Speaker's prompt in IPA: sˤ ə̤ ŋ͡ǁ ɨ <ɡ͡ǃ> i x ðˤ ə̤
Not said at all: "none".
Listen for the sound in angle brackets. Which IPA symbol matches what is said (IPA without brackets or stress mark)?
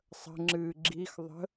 ɡ͡ǁ